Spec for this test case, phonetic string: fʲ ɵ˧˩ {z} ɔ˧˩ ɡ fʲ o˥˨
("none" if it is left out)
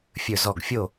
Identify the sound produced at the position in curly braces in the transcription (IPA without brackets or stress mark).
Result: z